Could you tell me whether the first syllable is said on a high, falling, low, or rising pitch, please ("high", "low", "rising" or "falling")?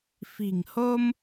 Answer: low